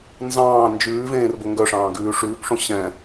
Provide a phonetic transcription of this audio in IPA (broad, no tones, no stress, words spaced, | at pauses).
nzɑ̃ː nd͡ʒʉːvẽːr boŋɡœʂɑ̃ː ɡʉːʂʉːkʂõ ɕɛ̃